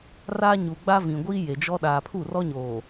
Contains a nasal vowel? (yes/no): yes